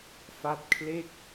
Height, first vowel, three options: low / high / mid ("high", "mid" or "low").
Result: low